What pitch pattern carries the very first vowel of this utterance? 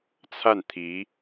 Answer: falling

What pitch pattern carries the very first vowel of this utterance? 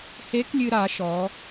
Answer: rising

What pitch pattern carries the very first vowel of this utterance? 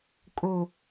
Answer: low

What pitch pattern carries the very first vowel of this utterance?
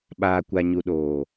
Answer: low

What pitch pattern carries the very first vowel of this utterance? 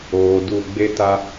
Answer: low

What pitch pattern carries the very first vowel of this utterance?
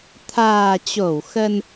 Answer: low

